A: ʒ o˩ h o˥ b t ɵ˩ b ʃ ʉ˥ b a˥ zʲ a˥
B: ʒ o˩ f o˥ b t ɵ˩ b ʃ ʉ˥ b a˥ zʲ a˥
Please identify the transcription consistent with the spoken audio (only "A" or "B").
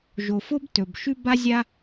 B